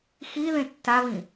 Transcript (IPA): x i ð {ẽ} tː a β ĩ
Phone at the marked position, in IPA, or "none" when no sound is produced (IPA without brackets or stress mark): ẽ